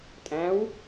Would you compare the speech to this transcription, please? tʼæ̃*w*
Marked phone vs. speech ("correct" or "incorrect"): correct